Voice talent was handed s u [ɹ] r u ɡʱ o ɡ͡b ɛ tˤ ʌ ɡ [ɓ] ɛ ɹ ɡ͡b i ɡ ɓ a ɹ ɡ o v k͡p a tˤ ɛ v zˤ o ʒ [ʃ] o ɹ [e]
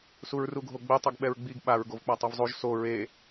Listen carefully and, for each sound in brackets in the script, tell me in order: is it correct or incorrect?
correct, correct, incorrect, correct

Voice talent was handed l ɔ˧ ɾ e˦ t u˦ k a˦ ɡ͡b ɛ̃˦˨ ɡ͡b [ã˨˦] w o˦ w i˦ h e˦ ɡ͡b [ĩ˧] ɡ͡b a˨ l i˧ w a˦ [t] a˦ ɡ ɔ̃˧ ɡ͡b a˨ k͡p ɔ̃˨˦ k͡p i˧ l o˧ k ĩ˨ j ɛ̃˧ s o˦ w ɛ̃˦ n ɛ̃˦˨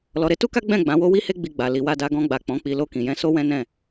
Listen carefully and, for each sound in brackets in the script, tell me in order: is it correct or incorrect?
correct, incorrect, incorrect

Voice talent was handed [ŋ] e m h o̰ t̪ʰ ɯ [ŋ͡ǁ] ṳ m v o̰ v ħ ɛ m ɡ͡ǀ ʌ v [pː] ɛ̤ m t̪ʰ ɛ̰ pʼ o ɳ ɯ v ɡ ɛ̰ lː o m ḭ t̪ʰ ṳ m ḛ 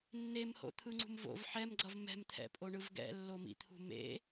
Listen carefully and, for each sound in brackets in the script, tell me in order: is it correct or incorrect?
incorrect, incorrect, incorrect

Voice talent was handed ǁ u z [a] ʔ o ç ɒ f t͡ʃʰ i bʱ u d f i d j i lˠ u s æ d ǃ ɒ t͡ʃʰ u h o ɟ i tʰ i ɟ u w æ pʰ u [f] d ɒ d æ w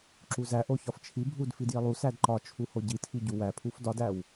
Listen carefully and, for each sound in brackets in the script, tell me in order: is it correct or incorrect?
incorrect, correct

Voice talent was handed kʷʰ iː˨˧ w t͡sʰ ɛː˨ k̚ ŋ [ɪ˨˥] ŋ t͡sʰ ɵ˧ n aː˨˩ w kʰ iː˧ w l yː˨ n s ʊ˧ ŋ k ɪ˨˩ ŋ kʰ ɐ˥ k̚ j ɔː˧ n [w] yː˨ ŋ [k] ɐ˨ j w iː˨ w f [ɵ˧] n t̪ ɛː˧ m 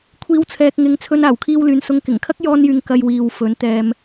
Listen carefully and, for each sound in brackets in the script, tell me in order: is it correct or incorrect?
incorrect, incorrect, correct, incorrect

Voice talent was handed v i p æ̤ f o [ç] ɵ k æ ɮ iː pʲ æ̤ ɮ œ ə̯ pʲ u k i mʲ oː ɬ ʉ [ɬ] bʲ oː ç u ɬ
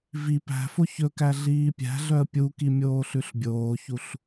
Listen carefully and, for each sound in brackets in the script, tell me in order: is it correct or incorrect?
correct, correct

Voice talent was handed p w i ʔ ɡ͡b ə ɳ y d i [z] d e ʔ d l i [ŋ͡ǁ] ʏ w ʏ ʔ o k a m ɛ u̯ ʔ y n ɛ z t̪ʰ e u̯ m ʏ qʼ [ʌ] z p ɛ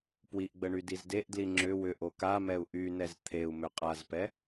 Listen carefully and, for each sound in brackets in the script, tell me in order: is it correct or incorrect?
correct, correct, incorrect

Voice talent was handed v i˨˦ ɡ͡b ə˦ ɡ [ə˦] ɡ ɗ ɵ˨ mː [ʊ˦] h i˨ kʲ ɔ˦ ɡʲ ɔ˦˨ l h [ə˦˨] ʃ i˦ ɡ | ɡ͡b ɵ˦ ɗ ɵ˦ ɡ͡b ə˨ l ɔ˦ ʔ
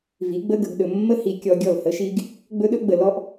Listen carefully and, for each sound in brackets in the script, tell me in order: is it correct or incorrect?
incorrect, incorrect, incorrect

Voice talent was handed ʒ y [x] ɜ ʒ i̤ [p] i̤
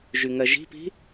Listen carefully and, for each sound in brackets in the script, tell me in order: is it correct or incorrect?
incorrect, correct

